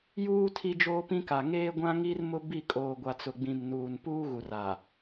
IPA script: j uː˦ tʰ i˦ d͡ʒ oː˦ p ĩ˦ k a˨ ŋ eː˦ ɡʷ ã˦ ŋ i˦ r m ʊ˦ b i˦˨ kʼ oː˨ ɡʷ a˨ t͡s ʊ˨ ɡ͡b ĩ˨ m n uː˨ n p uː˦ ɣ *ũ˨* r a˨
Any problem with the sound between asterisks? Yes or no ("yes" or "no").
yes